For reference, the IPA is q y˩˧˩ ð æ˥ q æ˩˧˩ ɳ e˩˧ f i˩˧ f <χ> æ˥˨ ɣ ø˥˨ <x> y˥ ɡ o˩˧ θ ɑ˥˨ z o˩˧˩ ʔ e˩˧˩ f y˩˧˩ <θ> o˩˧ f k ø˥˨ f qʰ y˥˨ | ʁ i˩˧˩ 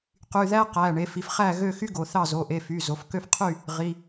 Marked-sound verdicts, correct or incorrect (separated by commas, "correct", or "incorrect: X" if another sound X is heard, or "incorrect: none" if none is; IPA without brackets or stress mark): correct, correct, incorrect: z